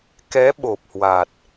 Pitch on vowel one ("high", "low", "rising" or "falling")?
rising